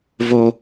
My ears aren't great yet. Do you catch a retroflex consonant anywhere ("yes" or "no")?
no